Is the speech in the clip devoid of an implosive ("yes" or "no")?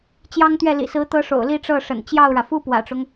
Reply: yes